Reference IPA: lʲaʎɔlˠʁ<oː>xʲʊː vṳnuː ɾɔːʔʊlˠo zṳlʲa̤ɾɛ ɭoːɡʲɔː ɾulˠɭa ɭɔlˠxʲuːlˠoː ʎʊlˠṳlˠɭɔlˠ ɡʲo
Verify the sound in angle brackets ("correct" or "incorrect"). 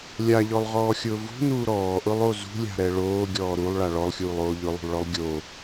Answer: incorrect